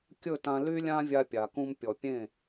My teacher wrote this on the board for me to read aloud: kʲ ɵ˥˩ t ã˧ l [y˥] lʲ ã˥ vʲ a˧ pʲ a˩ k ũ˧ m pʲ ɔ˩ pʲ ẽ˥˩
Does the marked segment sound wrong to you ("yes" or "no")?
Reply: no